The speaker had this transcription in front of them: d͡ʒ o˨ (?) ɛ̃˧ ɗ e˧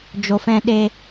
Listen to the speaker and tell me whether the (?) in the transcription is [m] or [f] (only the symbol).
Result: f